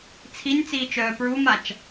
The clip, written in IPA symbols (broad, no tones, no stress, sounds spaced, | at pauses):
t͡sʰ i nʲ t͡s iː t͡ʃ œː p ɹ u m a t͡ʃ